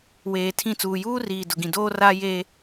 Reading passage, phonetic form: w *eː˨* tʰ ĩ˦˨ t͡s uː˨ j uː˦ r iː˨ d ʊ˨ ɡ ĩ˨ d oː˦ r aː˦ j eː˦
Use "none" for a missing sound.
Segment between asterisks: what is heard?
eː˨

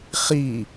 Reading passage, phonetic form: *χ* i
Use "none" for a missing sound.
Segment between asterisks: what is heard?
χ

